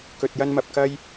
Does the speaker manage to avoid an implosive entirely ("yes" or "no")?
yes